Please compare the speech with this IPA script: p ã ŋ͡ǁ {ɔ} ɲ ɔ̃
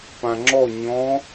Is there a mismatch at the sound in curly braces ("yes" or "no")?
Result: no